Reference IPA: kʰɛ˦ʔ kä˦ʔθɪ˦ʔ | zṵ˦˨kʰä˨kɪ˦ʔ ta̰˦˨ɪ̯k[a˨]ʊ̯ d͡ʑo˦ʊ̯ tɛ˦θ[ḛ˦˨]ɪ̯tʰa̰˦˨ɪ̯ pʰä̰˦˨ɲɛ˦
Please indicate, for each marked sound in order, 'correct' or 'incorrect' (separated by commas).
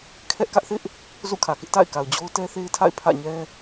correct, incorrect